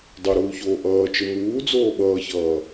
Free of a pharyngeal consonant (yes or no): yes